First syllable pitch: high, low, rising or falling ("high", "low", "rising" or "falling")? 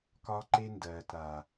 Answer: high